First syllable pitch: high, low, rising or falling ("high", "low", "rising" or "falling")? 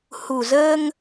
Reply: low